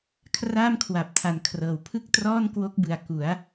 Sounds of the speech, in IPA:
kʰ r aː˥˩ m kʰ w a˨˩ p̚ tʰ a˨˩ n kʰ r ɤː˨˩ w pʰ ɯ˥˩ k̚ t r ɔː˥˩ n k w o˦˥ k̚ b ɯ˨˩ a̯ k u˩˦ a̯

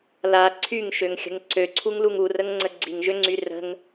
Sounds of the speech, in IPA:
l a ǀʰ y ŋ ʃ ø ŋ xʲ ə̤ ŋ ǀ ø ǀʰ u ŋ l u ŋ u r ə ŋ ŋ͡ǀ ə ɡ͡ǀ i ŋ ʒ ø ŋ͡ǀ y r ə̤ ŋ

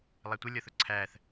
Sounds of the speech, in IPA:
lˠ æ tʷ ə lʲ ɔ θ ʊ ǀʰ æː θ

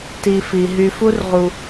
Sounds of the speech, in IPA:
t i˨ f i˩ ɦ y˨ f u˥ r ʁ u˨

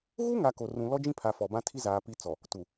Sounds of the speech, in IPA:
ɣ u˦ ŋ a˨ k o˨ r ũ˨ l ɔ˦ d͡ʒ ĩ˦ pʰ a˨ f ɔ˨ b ã˦ tʰ i˦ z aː˨ p i˦ t͡s ɔ˨ | t u˨

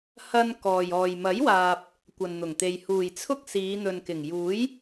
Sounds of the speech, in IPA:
h ɐ˧ n k ɔː˨ j ɔː˨ j m ɐ˨˥ j w aː˨ p̚ | kʷ ɐ˨ n n̪ ʊ˨˩ ŋ t̪ e˨ j h uː˨˩ j t͡sʰ ʊ˥ k̚ s iː˨˧ n̪ ɵ˨ n k ɪ˨˩ ŋ j uː˨˥ j

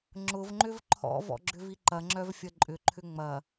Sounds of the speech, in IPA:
ŋ͡ǁ ʊ v ŋ͡ǃ ʏ v ǃʰ ɔ̰ v ɔ̰ ɡ͡ǁ ʏ v i ǃ ɐ ŋ͡ǁ œ v fʲ ɐ ǃʼ ʏ ǃʰ ʏ ŋ͡m ɐ

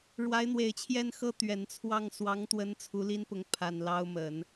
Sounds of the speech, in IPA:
ɻ w a˧˥ ɪ̯ n̪ w e˨˩ ɪ̯ t͡ɕʰ j ɛ˥˧ n x ɤ˥˩ t̪ ɥ ɛ˨˩ n t͡sʰ w ɑ˥˩ ŋ s w ɑ˧˥ ŋ t̪ w ə˧˥ n t͡sʰ u˧˥ l i˥ n p ʊ˧˥ ŋ pʰ a˨˩ n l ɑ˥ ʊ̯ m ə˨˩˦ n

